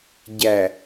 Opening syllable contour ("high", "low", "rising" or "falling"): low